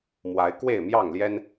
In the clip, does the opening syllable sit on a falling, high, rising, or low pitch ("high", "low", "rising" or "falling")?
rising